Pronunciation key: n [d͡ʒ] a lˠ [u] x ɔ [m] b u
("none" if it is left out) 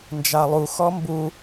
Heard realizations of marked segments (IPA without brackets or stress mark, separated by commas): d͡ʒ, u, m